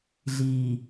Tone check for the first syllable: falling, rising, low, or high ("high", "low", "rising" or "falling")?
low